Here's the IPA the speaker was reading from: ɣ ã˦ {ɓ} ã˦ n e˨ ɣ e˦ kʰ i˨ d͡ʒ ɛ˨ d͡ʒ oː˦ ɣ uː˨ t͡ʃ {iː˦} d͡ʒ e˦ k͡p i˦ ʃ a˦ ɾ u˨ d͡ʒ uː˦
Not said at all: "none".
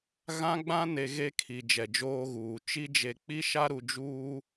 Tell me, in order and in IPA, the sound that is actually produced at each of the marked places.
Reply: ɡ͡b, i˦

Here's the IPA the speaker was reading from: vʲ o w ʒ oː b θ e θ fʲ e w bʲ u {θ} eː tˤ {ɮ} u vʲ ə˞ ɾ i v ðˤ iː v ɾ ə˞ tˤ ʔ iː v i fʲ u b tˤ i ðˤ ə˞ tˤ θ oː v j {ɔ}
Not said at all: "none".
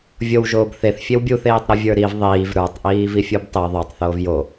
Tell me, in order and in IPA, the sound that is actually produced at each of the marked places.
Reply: θ, ɾ, o

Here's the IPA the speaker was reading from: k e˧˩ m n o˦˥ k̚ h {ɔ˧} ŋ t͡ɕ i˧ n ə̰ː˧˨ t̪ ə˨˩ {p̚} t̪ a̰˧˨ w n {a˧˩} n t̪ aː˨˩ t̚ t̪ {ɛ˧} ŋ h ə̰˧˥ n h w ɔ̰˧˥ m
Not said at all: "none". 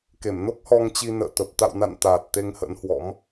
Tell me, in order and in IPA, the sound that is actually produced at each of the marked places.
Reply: ɔ˧, p̚, a̰˧˨, e˧

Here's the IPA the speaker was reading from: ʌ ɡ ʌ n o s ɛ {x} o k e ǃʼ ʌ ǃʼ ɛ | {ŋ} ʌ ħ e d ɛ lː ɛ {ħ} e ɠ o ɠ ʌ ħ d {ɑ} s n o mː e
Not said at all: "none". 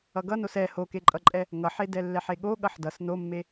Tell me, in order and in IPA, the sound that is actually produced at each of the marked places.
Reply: h, ŋ, ħ, ʌ

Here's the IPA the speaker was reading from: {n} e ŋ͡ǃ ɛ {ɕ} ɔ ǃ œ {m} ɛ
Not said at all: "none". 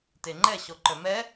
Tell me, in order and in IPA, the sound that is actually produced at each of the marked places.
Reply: t, ɕ, m

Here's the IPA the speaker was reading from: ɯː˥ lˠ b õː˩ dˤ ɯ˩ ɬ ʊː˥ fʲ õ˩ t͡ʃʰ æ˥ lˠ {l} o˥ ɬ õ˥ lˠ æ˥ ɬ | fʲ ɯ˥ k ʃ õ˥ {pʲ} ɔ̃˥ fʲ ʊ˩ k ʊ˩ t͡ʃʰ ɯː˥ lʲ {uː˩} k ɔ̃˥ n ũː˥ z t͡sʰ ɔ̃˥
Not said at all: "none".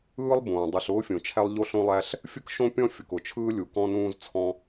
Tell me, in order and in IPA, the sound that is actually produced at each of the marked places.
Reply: ʎ, pʲ, u˩

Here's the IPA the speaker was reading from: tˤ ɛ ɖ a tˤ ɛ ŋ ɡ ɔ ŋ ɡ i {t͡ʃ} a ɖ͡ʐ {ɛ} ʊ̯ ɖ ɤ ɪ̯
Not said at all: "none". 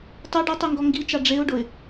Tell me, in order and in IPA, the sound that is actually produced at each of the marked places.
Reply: t͡ʃ, e

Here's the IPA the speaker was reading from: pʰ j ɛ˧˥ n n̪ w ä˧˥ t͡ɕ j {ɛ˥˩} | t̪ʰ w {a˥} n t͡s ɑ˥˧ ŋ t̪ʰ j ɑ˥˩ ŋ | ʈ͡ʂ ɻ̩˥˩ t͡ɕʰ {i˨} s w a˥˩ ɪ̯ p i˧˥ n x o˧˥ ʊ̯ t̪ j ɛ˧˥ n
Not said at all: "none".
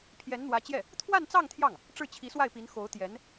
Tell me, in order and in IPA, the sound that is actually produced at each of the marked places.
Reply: ɛ˥˩, a˥˧, i˧˥

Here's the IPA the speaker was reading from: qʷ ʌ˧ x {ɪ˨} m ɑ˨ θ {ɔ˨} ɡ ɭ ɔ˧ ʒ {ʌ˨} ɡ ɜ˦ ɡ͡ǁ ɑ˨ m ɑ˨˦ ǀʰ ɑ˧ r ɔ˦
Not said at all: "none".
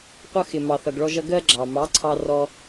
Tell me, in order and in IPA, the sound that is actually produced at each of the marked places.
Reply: ɪ˨, ʌ˨, ʌ˧

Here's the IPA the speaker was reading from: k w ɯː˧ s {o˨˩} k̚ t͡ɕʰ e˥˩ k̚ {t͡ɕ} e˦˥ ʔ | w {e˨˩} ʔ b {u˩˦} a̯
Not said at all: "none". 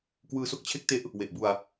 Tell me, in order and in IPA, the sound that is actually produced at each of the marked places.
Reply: o˦˥, t, e˨˩, u˧

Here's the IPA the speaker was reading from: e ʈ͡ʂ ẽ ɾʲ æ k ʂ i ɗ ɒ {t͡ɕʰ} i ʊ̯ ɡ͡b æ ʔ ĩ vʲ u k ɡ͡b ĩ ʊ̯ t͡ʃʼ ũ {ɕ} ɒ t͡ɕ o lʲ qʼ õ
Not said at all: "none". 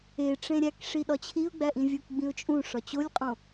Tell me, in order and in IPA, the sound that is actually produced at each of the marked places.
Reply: t͡ɕʰ, ʂ

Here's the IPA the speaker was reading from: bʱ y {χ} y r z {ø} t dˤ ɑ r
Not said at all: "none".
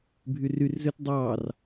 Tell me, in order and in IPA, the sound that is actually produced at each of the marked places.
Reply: r, ø

